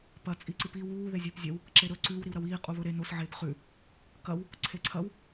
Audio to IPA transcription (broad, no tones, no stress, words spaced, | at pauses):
pɐ t͡sʼiǀɨpi wuː ðezʲɵːpzʲɐw | ǁeɾɵ ǀʉw ɾiwɾɐwiː qʼuβɵɾe nos ʕeːpχʉ | kɐw | ǀʰeǀʰɐw